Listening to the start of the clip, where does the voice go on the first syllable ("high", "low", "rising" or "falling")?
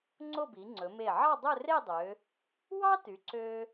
falling